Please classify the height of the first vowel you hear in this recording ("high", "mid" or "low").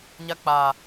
low